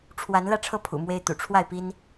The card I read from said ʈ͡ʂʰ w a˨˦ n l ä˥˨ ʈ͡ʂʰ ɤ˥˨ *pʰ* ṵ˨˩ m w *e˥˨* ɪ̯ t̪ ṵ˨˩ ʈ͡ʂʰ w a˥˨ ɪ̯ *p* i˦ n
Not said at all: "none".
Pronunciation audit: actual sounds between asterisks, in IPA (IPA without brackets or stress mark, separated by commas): pʰ, e˦, p